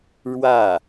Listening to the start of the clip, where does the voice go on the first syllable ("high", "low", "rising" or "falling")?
falling